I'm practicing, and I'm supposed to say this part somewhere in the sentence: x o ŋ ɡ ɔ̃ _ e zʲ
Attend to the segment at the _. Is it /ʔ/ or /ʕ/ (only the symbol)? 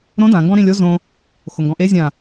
ʔ